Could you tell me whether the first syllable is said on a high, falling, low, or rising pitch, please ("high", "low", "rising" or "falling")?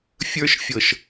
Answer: high